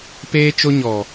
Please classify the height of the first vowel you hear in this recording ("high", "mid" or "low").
mid